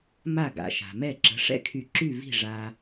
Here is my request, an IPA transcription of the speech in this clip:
m a˥˩ ɡ a̰˩ ʃ a̤˩ m ɛ˥˩ ǁ ə̤˩˥ ʂ ɛ̰˥ kʰ y˧ ǁ y˥˩ v i̤˥˩ ʐ a˧

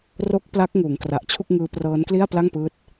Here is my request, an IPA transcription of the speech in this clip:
r o˦˥ k̚ p l a˦˥ k̚ ŋ uː˩˦ ŋ k r a˨˩ ʔ t͡ɕʰ u˥˩ k̚ ŋ ɯː˦˥ p r ɤː˦˥ n k l i˥˩ a̯ p l a˥˩ ŋ p ɯː˦˥ t̚

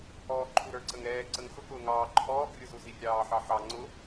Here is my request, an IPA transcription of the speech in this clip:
h ɔː ǃʰ u ɾ ə˞ ǀ ə ŋ ɾ ɛː ǀ ə ŋ x ʊ k ʊː ŋ ɑː ǃʰ ɔː ɡ rʲ ʊ z u z i rʲ ɑː ħ ɑ ħ ɑ ŋ͡ǀ ʊ

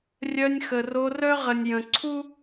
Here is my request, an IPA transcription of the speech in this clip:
rʲ œ˧ nʲ x ə˨ r o˧ r œ˦ ʁ ə˨ nʲ j ə̃˨ ǀʰ u˦

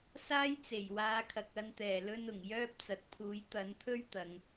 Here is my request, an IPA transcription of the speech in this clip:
s aː˥ j t͡s e˨˩ j w aː˨˧ kʰ ɐ˨ k̚ ɐ˧ n t̪ ɛː˨˩ l ɵ˧ n ʊ˨˩ ŋ j œː˥ p̚ t͡s ɐ˨ t̚ pʰ uː˨˥ j t̪ ɐ˨˥ n t̪ʰ ɵ˥ ɥ t̪ ɐ˨˧ ŋ

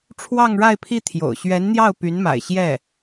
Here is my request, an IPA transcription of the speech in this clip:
ʈ͡ʂʰ w ɑ˥˧ ŋ ɻ a˥˧ ɪ̯ pʰ i˥˩ t̪ʰ j o̰˨˩ ʊ̯ ɕ ɥ ɛ˧˥ n n̪ j ɑ˥˩ ʊ̯ p y˧˥ n m a̰˨˩ ɪ̯ ɕ j ɛ˥˩

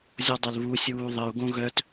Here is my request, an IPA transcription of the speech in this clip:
zʲ ɔ dˤ ɐ l β u sʲ uː ðˤ ə u̯ ɡ õ ɣ œ t

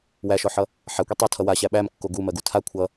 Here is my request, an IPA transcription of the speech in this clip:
w æ ʃ ɔ ħ ʌ | ħ a kʷ i tˤ o tʰ ʌ w a ɕ æ ɓ æ m kː o ɡ u m ɜ ɡ u tʰ a kʷʰ ʌ

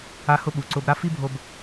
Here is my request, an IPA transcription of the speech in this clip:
a˦ h ʊ˦ ɓ u˨ ǀ ʊ˦ b ɾ a˦ f i˦ bʱ o˨ b

